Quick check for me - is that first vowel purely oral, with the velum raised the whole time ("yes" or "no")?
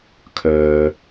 yes